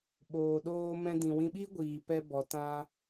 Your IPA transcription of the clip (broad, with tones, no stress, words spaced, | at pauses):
ɓoː˨ɗoː˧mɛ̃˧ dĩ˨wĩ˧ɓiː˦ɡʷiː˨ pɛ˧bɔ˨tã˧